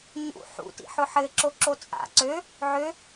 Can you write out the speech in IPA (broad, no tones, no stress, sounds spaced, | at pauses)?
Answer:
ɲ ṵ ħ ṵ t ḭ ħ ʊ ħ ɘ ǁ o ǁ o t͡sʼ a̰ ǀ ø | ʕ ø